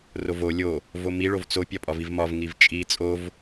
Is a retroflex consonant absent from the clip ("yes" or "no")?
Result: no